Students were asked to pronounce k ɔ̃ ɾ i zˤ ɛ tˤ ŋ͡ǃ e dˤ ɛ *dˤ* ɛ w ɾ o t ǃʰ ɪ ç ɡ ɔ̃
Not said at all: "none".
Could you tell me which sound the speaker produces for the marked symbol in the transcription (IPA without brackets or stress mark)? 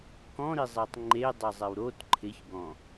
zˤ